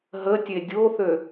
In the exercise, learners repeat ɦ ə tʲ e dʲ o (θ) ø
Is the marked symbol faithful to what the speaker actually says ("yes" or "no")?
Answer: yes